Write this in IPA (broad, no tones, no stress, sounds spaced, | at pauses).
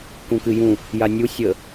k ũ k ɨ j ũ | j a nʲ u sʲ ə